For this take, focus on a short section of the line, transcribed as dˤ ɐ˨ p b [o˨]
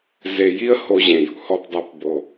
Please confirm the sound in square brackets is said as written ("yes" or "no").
yes